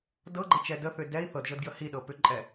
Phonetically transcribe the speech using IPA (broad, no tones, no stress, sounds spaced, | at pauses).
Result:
d ɤ ɡ͡ǃ ə t͡ʃ ɛ d ə θ ʏ d ɛ i̯ θ ɤ d ʒ ɤ d ɡ j ə h i ɗ ɤ p ʏ ǃʼ ɛ